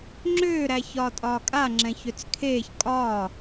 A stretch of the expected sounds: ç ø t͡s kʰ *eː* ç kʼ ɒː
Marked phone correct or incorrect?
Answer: correct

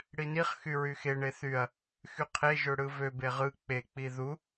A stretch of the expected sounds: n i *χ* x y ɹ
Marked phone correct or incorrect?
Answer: correct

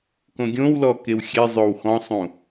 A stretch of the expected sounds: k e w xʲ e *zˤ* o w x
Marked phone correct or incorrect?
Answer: correct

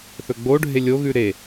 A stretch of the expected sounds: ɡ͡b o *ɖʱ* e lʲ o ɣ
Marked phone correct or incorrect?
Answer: correct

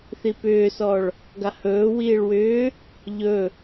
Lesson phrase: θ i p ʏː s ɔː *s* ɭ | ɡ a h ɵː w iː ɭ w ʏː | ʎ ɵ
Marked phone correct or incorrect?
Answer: incorrect: none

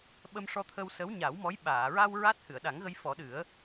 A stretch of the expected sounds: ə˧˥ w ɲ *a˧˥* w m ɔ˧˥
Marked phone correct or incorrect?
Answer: incorrect: a˨˩˦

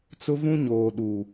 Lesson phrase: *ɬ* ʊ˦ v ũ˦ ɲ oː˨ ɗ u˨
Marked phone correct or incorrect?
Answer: incorrect: t͡s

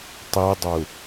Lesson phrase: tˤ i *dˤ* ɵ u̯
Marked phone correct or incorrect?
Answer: correct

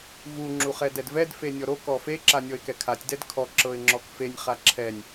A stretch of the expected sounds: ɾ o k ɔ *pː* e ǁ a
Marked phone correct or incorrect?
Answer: incorrect: f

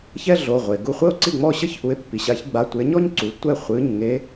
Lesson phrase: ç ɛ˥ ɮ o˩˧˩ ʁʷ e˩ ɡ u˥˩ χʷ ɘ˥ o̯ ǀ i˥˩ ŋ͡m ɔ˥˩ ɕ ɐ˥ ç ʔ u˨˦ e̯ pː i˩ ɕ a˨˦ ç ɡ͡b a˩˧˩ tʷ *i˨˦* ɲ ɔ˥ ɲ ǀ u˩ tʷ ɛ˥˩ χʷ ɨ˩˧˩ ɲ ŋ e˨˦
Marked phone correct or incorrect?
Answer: incorrect: e˨˦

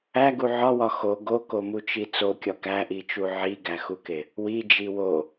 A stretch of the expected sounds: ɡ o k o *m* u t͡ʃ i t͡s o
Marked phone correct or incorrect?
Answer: correct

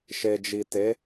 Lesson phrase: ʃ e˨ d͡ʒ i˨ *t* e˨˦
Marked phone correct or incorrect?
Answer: correct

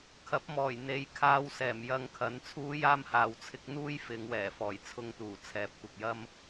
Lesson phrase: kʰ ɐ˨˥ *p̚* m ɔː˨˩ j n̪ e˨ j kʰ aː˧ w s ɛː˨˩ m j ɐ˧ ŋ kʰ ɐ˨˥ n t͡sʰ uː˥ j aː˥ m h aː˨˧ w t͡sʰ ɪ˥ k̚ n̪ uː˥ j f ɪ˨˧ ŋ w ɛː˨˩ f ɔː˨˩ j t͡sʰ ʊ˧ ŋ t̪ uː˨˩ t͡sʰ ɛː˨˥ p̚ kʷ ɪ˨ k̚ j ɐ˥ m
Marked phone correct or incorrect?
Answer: correct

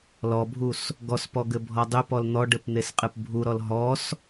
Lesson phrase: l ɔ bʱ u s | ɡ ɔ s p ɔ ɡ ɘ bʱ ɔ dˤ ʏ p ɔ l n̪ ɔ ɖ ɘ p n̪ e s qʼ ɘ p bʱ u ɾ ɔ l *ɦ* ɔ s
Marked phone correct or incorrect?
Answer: correct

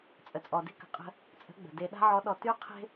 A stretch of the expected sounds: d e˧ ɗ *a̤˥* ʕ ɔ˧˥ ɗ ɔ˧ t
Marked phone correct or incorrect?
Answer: correct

